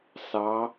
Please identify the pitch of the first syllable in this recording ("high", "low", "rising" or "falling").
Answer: rising